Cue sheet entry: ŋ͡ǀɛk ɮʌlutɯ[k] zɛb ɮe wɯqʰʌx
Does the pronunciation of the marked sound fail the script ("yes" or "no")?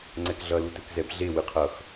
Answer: no